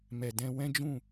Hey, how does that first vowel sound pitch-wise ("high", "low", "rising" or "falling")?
low